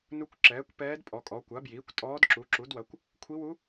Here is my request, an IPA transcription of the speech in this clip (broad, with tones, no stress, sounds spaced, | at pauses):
n u˧˥ kʷ ǁ ɛː˩˥ kʷ p ɛː˧˥ d pʼ ɔ˩˥ kʼ ɔ˩˥ kʷ a˩˥ b j iː˩˥ kʷ tʼ ɔː˧˥ d ǁ u˩˥ ǁ u˩˥ d w ɐ˩˥ kʷ | kʷʰ i˧˥ w u˧˥